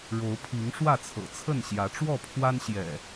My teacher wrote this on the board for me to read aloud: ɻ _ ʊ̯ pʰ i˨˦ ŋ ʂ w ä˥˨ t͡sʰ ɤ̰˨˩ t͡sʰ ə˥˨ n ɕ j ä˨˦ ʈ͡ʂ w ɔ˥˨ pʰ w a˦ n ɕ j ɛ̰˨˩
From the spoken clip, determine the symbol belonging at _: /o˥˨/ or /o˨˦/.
o˨˦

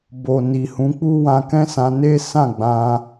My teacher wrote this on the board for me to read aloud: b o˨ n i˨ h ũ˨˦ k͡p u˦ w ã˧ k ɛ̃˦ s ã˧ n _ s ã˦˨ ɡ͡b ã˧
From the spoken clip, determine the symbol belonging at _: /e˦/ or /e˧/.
e˦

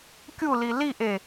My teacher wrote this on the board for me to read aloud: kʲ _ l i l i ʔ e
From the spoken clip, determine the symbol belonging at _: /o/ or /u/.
u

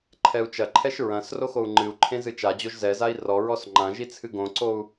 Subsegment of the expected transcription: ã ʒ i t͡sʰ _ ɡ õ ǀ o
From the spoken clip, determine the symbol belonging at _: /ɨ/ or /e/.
ɨ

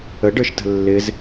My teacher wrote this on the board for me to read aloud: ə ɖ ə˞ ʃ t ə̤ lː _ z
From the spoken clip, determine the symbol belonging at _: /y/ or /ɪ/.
ɪ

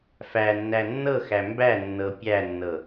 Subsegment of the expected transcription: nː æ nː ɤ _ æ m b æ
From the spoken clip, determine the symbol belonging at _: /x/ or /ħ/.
x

